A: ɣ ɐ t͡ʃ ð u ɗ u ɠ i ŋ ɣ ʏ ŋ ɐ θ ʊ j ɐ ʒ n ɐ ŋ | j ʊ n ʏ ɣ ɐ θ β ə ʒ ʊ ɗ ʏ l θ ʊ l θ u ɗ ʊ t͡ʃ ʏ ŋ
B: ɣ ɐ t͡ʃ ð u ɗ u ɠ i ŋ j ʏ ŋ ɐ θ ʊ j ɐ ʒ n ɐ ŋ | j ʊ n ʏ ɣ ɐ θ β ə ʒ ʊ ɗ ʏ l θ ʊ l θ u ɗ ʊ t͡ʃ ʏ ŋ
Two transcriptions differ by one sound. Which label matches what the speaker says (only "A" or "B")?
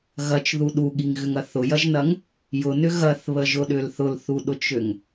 A